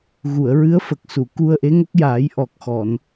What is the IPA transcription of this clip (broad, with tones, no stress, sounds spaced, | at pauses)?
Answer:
ɣ u˨˩˨ ə̯ ɹ ɨ˧˥ ə̯ f ə˨˩ k̚ s u˨˩˨ k u˧ ə̯ ʔ e˧˥ ŋ ə˦˥ k̚ j aː˨˩˦ j ʔ ɔ˨˩ k̚ x ɔ˨˩˨ n